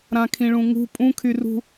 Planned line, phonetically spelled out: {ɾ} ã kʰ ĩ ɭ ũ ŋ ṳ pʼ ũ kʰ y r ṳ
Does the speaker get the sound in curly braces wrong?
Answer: no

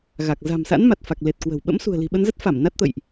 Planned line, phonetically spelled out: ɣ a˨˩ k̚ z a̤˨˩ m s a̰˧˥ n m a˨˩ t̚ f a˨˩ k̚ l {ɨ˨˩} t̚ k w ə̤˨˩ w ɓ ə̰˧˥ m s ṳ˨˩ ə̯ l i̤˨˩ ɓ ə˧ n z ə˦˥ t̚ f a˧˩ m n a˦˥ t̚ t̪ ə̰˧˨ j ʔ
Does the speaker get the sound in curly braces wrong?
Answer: yes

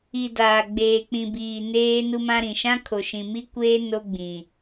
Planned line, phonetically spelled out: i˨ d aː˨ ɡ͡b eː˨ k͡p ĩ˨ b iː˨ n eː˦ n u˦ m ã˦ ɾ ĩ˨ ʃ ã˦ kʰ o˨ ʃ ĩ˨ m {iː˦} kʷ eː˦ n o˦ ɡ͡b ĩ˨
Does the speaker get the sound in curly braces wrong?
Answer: yes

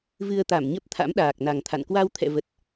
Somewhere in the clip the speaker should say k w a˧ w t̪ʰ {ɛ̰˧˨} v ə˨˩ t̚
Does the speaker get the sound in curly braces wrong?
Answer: no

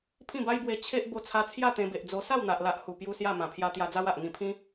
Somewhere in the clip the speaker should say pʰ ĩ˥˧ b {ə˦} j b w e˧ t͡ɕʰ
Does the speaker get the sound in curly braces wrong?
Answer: yes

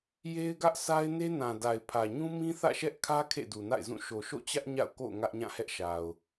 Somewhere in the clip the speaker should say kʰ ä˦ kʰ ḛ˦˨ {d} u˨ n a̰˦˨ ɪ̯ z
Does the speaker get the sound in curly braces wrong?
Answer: no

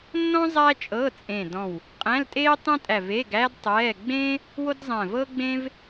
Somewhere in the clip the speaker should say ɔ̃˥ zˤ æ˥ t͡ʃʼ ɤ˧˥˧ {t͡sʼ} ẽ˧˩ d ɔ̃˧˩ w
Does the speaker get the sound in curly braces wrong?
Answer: no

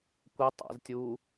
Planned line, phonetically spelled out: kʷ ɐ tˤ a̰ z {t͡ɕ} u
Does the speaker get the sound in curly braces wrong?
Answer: yes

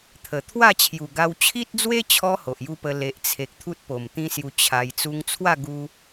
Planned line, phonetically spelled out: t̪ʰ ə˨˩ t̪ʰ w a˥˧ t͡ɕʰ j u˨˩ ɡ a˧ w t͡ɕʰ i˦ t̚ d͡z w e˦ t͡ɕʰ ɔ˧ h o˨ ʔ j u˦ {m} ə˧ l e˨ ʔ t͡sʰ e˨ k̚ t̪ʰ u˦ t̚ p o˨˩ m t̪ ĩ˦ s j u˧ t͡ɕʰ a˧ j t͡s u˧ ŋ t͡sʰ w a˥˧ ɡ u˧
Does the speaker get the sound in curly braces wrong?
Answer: yes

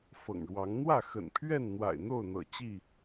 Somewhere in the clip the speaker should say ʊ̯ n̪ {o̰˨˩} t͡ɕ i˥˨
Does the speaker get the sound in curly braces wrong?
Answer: yes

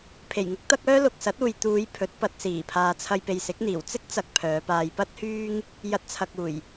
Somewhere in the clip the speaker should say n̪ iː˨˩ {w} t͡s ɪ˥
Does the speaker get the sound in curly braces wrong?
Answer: no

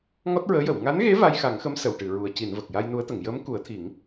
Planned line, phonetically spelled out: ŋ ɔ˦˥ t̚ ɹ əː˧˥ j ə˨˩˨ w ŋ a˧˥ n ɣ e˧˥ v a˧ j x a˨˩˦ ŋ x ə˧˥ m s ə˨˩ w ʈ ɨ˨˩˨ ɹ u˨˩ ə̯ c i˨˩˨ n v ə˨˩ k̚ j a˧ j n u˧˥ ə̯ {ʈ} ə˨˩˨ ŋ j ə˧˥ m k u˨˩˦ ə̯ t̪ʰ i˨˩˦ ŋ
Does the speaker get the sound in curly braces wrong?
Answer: yes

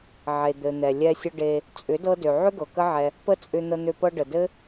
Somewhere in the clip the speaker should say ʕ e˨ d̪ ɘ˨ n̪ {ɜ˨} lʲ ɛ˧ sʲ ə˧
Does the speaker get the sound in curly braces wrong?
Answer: yes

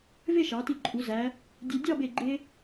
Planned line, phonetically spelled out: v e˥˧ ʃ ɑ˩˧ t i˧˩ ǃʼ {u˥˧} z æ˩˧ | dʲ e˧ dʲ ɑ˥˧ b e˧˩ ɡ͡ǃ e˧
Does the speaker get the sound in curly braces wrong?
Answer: yes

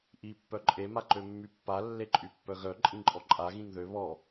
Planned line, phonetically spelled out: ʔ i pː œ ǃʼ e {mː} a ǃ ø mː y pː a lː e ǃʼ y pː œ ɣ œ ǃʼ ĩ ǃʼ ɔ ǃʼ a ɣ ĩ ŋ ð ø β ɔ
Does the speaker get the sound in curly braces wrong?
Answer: yes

